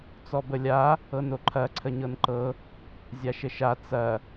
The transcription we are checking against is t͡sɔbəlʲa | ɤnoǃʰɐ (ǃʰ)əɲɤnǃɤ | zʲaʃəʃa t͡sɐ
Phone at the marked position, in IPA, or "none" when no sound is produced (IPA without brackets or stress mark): ǀʰ